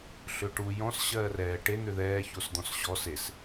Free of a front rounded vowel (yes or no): no